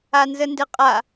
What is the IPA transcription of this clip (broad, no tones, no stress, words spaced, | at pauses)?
anzəndɘqʼa